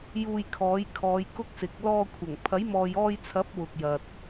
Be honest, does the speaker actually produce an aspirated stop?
yes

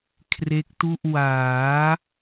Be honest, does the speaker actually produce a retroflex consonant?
no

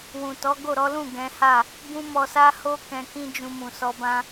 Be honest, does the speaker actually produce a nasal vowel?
yes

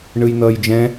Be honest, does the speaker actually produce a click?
no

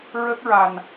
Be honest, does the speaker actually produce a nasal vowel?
no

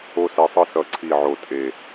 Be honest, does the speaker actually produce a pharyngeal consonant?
yes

